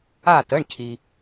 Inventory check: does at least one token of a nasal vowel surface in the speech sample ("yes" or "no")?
no